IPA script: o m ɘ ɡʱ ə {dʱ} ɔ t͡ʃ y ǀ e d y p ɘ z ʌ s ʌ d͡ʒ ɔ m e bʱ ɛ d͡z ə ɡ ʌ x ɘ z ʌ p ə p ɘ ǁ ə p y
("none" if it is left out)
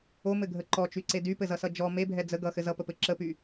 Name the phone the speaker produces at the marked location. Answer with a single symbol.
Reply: ǃ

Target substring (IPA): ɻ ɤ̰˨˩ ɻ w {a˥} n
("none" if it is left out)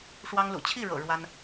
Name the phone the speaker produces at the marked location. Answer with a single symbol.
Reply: a˥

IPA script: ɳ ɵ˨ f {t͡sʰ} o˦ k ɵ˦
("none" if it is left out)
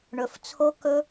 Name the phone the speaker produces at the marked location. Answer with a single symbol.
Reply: t͡sʰ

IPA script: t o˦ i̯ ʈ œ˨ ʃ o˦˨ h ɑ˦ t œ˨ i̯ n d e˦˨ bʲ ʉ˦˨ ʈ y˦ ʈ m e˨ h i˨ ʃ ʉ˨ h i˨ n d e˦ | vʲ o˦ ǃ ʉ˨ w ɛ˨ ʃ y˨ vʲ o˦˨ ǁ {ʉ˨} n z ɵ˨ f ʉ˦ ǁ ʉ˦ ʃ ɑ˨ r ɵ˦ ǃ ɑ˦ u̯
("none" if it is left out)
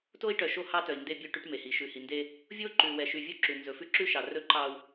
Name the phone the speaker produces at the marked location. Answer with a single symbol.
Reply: ʉ˨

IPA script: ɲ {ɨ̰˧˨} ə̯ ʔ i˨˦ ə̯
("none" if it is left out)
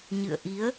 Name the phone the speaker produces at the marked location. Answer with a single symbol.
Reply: ɨ̰˧˨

